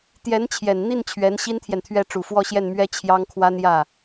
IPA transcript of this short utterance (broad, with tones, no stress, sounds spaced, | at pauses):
t̪ j ɛ˧˥ n t͡ɕʰ j ɛ˨˩ n n̪ i˥˩ n t͡ɕʰ ɥ ɛ˧˥ n ɕ i˥ n t̪ʰ j ɛ˨ n t̪ʰ ɥ ɛ˥˩ ʈ͡ʂ u˨˩ f w ɔ˥˧ ɕ j ɛ˥˩ n m ɥ ɛ˥ t͡ɕʰ j ɑ˥ ŋ kʰ w a˥ n j ä˥˩